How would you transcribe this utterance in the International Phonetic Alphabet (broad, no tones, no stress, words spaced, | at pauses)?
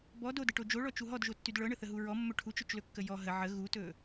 bɔ dodəʈo d͡ʒoɭɔt͡ʃu ɦɔdʒotːyd ɭɤɳəθəɦu ɹɔmːɵ ʈʰut͡ʃɵt͡ʃlɵkːə jɔ ɦə ʕə ɣutɵ